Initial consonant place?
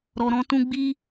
alveolar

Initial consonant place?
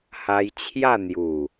glottal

